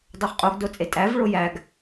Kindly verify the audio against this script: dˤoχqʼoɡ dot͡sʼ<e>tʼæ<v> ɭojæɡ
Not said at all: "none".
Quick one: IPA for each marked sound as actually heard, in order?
e, v

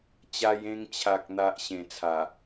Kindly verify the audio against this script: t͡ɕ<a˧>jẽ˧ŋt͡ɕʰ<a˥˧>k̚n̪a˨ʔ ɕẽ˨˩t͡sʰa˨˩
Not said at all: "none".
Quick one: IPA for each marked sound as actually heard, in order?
a˧, a˨

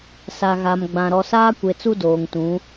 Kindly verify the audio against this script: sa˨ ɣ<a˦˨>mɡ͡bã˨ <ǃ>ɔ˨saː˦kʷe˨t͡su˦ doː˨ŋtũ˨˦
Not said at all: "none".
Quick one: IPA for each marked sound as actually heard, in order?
a˨, ɾ

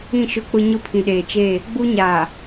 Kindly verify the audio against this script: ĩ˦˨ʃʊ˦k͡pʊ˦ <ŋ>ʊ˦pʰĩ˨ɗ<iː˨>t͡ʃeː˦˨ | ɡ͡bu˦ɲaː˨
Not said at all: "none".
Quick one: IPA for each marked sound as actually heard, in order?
ɲ, eː˨

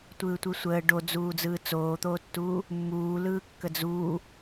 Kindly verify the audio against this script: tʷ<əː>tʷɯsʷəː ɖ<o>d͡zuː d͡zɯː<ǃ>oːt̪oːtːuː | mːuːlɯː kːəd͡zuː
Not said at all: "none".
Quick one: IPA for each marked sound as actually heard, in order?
ɯː, o, t͡s

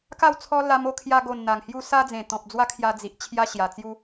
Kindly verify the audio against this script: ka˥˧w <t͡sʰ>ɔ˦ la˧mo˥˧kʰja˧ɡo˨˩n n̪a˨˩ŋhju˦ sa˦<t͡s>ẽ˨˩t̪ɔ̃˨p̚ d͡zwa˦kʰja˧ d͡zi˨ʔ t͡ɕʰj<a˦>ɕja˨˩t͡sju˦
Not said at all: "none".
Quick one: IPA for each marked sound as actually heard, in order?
t͡sʰ, d͡z, a˦

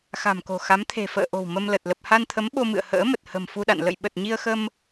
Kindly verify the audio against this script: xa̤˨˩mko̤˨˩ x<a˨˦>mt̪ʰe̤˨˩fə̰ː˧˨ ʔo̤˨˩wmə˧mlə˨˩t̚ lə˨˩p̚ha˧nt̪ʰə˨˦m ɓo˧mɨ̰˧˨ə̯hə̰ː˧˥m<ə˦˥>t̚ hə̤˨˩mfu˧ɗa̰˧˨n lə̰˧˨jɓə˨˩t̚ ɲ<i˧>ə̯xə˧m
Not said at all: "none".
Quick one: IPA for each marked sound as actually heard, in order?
a˨˦, ə˨˩, i˧

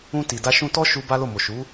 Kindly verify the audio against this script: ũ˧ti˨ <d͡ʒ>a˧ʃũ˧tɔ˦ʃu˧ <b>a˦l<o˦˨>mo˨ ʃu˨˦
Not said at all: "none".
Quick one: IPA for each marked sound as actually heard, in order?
d, b, o˦˨

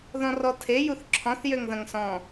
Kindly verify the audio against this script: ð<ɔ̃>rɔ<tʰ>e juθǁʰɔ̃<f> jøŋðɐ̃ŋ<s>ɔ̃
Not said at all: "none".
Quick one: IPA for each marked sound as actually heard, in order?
ɔ̃, tʰ, θ, s

